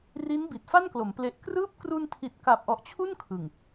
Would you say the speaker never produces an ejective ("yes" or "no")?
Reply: yes